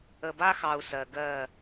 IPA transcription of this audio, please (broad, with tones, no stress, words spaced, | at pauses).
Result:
ə˨ba˦xɑ˨u̯ sɜ˨ ɡɜ˦˨